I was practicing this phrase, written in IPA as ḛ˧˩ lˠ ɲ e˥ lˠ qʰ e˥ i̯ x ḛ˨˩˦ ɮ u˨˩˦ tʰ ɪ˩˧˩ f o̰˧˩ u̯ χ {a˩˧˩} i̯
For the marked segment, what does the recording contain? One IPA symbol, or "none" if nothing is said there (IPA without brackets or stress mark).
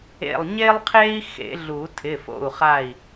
a˧˩